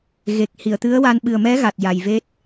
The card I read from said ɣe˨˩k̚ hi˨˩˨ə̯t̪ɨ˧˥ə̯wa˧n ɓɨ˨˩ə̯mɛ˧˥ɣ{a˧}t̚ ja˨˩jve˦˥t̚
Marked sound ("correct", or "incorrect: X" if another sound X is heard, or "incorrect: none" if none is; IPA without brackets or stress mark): incorrect: a˨˩